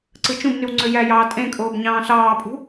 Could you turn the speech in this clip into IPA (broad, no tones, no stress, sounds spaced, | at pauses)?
ǀ ɯ t͡ʃ ũ b n y w ŋ͡ǀ ø j æ j ɑː tʼ ẽ kʼ oː b ɲ ɑ̃ː ɬ ɑː pʼ ṳ